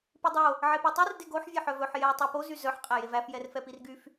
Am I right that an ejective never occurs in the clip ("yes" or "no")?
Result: no